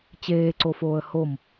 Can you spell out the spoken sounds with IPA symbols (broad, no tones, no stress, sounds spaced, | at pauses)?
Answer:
t͡ɕ eː ǀ o f oː ə̯ h o m